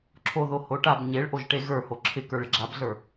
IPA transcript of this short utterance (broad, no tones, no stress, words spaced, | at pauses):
ǁʰoðo hoʈab ɲeɭʔoʒʈe ɣə˞ hoǁʰɪ kə˞ɭɪɡ͡ǁabɮə˞